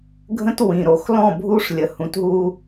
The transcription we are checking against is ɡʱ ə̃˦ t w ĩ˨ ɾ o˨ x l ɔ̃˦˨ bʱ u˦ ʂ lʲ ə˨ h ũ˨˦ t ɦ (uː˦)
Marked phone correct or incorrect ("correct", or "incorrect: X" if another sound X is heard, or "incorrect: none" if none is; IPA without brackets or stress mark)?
incorrect: u˦